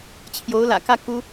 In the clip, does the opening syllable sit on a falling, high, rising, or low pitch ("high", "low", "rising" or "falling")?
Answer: rising